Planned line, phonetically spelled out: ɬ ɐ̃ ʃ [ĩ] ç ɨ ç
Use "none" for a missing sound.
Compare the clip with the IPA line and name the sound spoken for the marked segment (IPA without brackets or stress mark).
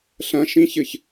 ĩ